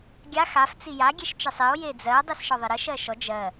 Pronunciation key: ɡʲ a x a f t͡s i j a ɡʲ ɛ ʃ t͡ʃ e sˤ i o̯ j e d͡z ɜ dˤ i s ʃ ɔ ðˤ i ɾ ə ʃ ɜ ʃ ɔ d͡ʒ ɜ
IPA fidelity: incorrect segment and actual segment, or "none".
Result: none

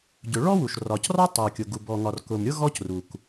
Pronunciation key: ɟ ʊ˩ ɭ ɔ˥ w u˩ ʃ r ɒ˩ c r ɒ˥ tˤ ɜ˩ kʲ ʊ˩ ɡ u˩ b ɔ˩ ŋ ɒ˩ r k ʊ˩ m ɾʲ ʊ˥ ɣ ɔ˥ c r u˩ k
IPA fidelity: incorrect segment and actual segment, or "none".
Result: none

